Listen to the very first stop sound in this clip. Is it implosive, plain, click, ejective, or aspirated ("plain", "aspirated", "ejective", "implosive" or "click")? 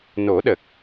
implosive